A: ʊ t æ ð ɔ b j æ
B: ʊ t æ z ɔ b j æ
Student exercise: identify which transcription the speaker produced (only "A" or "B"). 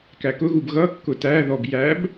A